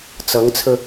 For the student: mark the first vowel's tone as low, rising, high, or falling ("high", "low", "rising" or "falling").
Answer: rising